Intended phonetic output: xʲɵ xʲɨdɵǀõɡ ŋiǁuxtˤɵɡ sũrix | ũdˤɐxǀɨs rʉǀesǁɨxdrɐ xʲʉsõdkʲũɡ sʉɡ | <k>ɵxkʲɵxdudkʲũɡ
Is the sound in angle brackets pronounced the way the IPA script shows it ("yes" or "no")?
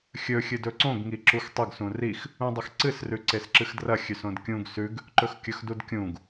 no